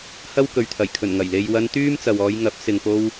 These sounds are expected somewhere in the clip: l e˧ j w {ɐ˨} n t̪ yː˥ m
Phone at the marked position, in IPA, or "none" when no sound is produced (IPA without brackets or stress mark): ɐ˧